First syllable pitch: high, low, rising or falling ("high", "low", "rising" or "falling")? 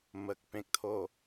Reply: low